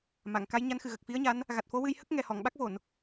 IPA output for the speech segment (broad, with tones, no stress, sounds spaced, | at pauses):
m a˨˩˨ ŋ k a˧˥ j ɲ a˧˥ n x ɨ˨˩ ɣ ə˨˩ k̚ f i˧˥ ə̯ ɲ a˧˥ n | ɣ a˨˩ t̚ f o˧˥ w ɨ˧ j h ə˦˥ k̚ ŋ ɛ˨˩ h ɔ˨˩˨ ŋ ɓ a˦˥ k̚ v o˨˩˨ n